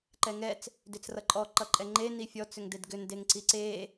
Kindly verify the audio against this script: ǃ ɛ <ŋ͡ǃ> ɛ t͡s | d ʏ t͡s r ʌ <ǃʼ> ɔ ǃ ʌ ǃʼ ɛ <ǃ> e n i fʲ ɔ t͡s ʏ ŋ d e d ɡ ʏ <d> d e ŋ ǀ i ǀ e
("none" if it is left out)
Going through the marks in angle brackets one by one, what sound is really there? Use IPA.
ŋ, ǃʼ, ŋ͡ǃ, n

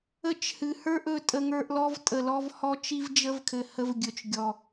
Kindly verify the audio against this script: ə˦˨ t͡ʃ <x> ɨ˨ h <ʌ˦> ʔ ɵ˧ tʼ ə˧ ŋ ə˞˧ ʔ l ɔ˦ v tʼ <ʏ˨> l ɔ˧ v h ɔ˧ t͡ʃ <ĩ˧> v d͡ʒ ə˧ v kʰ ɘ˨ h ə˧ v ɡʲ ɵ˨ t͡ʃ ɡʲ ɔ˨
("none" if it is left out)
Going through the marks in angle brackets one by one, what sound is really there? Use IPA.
h, ə˞˦, ə˨, i˧

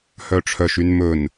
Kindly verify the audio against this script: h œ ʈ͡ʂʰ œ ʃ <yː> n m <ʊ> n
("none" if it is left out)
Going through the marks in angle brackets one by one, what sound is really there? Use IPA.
y, ɵ

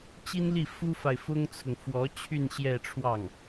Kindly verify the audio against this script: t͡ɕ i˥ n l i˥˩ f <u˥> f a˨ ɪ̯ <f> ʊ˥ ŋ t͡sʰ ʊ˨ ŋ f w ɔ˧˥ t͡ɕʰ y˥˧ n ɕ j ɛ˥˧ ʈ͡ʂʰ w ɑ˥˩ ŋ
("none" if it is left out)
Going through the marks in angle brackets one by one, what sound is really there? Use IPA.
u˥, f

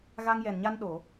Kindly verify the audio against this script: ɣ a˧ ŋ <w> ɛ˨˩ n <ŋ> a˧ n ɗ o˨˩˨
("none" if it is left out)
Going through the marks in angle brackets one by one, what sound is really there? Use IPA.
j, ɲ

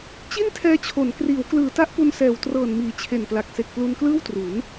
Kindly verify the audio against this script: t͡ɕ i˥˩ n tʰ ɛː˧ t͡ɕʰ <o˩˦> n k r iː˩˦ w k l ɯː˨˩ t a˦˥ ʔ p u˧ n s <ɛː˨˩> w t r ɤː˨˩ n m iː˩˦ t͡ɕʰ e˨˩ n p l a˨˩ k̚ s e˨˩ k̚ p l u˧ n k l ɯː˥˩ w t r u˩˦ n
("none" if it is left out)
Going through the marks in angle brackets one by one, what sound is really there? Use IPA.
o˩˦, ɛː˨˩

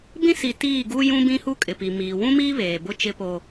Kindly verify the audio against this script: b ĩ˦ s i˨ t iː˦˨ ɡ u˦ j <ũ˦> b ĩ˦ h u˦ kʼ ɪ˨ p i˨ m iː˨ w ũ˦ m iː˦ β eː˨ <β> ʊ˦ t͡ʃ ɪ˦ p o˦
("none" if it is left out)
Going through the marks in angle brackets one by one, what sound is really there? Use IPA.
ũ˦, b

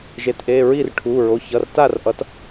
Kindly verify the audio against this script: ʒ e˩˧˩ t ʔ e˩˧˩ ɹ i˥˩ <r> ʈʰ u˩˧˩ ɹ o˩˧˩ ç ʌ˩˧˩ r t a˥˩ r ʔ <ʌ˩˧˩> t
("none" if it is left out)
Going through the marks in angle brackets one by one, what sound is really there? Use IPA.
r, ʌ˩˥

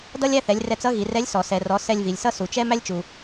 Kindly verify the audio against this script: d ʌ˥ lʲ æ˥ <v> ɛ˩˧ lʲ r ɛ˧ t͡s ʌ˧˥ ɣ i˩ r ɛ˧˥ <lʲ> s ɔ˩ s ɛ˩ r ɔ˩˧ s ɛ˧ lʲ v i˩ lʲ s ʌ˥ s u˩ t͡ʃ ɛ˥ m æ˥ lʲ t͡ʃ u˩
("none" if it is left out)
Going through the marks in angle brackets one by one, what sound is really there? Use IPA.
θ, lʲ

